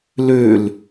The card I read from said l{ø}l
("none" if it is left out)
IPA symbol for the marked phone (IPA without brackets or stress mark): ø